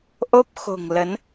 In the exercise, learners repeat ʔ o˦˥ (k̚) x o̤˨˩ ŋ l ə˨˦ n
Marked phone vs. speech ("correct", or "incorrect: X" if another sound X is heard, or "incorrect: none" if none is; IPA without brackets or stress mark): incorrect: p̚